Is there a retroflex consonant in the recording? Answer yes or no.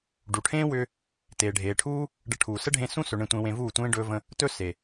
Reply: yes